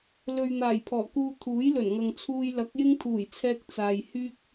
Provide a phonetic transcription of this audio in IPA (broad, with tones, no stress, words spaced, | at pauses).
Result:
lɵ˨ɥ n̪aː˨˩jpʰɔː˨˩kuː˧ t̪ʰuː˨˥jlɵ˨˩nŋɐ˨ŋt͡sʰuː˧j lɐ˨˥k̚jɪ˥ŋt̪ʰuː˨˩jt͡sʰɛː˧k̚ t͡saː˨jhyː˥k̚